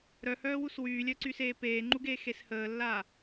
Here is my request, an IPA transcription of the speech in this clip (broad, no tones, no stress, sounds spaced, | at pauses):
ɾ œ h œː w u s w yː lʲ œ ǀ y s eː p eː ŋ͡ǃ u ɡ eː x e s h əː lː aː